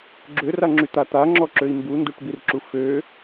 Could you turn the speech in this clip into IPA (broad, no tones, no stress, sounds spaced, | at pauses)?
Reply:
ɡ͡ǁ ø r a ŋ͡ǁ y t̪ a t̪ a ŋ͡ǁ ɔ ǁ ø i̯ m b u n d u ʈ b i r ǁ u f ø